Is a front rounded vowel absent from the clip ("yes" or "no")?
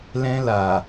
yes